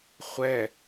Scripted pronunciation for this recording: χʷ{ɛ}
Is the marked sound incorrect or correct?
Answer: correct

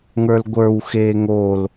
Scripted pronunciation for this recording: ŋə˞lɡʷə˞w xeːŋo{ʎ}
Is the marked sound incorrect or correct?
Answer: incorrect: l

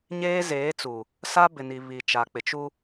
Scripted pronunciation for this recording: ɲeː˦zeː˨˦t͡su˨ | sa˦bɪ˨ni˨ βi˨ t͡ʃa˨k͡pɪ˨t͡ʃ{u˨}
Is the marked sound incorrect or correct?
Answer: incorrect: u˦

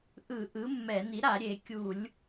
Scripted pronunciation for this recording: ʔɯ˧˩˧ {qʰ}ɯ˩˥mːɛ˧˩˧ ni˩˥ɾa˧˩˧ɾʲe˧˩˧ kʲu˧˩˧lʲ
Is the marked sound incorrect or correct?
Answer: incorrect: ʔ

